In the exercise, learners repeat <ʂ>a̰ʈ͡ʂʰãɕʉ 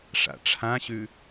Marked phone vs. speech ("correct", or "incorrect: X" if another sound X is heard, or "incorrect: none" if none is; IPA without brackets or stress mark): correct